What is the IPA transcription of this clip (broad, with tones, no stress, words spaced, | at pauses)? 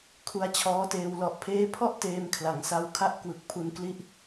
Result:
kʰu˦˥a̯t͡ɕʰɔː˦˥teː˧w lɔ˨˩ʔpʰeː˦˥pʰɔ˥˩ʔ teː˧mkʰla˩˦ŋsa˧wkʰa˥˩ʔ kwɯ˨˩k̚pʰu˧nkli˥˩ʔ